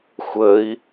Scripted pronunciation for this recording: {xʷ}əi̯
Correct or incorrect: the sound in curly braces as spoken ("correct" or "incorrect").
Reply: correct